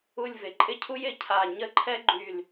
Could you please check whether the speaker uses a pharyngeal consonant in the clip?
no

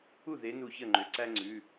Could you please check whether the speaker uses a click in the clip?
yes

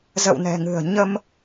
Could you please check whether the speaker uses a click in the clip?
no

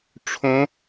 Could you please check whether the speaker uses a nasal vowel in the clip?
yes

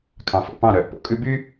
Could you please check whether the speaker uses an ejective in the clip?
yes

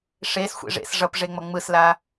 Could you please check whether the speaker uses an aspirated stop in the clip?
no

